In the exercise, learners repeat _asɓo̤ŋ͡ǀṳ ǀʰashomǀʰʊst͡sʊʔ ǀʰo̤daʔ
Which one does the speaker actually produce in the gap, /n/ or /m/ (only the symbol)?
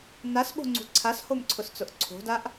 n